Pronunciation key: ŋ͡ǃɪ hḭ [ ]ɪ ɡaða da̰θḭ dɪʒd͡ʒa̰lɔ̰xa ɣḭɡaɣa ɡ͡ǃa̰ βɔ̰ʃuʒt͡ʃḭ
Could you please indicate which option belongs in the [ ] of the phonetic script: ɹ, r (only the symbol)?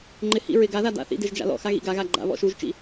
ɹ